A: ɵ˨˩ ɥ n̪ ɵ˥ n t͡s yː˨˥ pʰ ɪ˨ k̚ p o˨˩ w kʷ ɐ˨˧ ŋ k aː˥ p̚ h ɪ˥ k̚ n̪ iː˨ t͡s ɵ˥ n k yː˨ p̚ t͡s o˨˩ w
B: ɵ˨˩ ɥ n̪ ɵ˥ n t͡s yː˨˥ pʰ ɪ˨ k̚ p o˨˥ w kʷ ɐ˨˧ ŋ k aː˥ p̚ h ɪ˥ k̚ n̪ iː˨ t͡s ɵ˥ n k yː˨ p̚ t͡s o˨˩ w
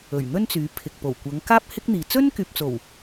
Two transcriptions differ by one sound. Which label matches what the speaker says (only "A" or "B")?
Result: A